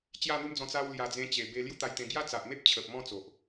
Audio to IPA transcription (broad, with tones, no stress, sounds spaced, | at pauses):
t͡ɕ j a˥˧ n̪ u˦ m d͡z ɔ̃˧ t͡s a˧ w l j a˨˩ d͡z ẽ˧ t͡ɕ e˨˩ b e˧ l j u˦ t̪ a˧ j t̪ ẽ˧ ɡ j a˦ t͡s a˨ ʔ m e˦ p̚ t͡ɕʰ ə˨ p̚ m ɔ̃˥˧ t͡s o˨ ʔ